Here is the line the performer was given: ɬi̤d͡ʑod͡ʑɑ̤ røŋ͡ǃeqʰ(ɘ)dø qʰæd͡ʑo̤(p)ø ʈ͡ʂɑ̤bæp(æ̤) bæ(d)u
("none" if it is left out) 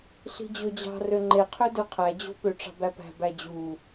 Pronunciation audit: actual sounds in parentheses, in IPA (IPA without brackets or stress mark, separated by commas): ø, p, æ̤, d͡ʑ